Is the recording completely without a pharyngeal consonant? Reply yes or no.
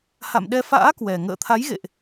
yes